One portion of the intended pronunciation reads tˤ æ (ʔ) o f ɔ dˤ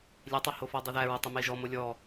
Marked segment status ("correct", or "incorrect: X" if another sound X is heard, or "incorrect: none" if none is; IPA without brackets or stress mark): incorrect: h